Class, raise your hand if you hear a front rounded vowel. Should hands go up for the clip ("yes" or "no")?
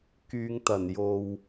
yes